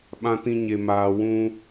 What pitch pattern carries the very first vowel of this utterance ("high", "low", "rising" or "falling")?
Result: high